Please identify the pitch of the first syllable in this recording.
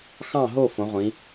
falling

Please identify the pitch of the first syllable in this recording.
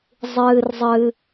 low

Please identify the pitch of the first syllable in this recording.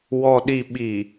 low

